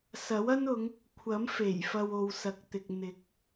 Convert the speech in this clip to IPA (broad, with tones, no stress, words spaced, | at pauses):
sɐ˨˥wɐ˥n ʊ˨˧ŋ | kʷʰɐ˨˥mfe˨˩j fɐ˧wo˨wsɐ˨k̚t̪ɪ˨k̚ n̪ɪ˨˥k̚